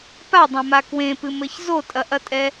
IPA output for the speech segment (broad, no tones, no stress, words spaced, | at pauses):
padˤãma kwẽpɨmɘç zotʼɐʔɐtʼɛ